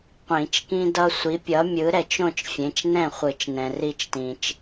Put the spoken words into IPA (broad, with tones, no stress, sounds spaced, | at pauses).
qʷ ĩ˨˩˦ t͡ʃ k ĩ˦ d ʌ˦ sʷ i˨˥ pʲ ʌ˨˥ mʲ ɯ˨˥ ɾ ɛ˨ t͡ʃ õ˥˨ t͡ʃ fʲ ẽ˨˥ t͡ʃ n ɛ̃˥˨ χʷ ɯ˨˩˦ t͡ʃ n ɛ̃˨ r i˥˨ t͡ʃ t ĩ˨ t͡ʃ